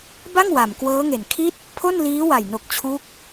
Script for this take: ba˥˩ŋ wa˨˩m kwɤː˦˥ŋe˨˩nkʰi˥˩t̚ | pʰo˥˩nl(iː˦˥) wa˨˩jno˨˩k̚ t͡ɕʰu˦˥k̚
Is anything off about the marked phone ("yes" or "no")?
no